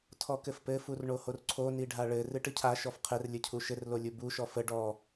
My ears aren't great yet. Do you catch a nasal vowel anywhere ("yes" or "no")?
no